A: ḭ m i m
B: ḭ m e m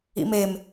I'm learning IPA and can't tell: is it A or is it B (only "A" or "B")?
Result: B